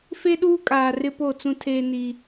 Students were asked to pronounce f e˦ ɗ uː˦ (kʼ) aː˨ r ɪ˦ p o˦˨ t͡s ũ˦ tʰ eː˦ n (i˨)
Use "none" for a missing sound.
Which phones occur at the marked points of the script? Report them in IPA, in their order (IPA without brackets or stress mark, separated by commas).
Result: kʼ, i˦